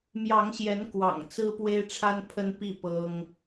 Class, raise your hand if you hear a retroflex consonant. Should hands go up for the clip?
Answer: yes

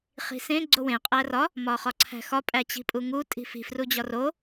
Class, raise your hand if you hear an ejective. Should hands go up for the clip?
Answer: yes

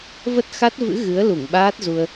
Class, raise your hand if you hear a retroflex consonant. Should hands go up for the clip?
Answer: no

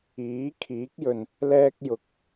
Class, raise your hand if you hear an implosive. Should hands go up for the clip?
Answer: no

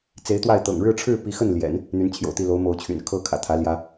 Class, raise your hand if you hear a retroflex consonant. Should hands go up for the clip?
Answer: yes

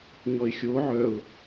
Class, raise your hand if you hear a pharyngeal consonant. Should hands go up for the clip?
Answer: yes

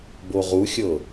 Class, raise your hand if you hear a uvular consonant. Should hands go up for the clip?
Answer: yes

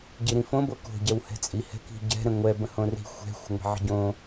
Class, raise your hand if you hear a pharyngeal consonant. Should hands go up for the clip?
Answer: yes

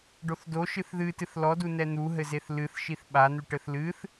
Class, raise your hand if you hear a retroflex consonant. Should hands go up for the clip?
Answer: yes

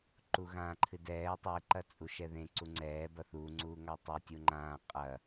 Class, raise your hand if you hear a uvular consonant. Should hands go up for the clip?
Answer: yes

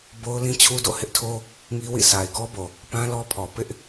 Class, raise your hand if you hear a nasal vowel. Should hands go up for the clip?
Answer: yes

